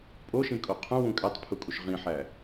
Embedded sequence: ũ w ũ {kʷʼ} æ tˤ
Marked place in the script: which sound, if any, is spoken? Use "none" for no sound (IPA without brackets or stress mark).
kʼ